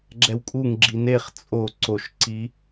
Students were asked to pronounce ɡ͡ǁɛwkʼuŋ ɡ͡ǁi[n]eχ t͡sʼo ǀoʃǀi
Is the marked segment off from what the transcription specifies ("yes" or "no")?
no